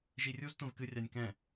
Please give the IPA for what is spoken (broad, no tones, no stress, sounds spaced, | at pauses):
ʒ i rʲ u z tʷ ɛ̃ v k ɨ rʲ a nʲ k ɛ̃